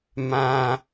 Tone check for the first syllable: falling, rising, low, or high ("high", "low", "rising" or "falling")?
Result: high